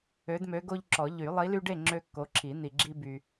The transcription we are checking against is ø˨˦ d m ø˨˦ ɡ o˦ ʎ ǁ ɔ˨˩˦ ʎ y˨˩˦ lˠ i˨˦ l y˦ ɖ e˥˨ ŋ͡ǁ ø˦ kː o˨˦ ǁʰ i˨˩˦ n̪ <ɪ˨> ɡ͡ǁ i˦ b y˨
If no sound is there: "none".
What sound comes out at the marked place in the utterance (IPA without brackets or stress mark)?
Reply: i˨